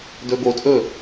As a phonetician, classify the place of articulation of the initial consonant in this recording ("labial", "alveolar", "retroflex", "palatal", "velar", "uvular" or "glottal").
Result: alveolar